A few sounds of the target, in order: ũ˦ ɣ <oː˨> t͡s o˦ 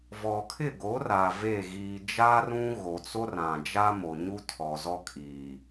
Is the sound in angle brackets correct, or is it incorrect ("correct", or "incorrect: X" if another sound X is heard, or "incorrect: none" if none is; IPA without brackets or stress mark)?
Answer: incorrect: o˨